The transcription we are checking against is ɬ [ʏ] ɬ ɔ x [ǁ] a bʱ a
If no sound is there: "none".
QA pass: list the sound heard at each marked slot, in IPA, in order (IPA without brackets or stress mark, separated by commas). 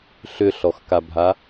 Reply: ʏ, k